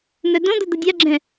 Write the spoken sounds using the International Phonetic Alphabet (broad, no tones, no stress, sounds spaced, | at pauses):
n̪ œ d õ d̪ ə d̪ ə dʲ a ɡ͡ǁ ɛ̃